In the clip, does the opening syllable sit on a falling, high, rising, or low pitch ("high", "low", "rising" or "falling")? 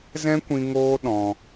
high